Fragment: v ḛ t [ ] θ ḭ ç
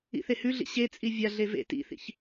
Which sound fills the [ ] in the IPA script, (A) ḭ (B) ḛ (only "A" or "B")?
A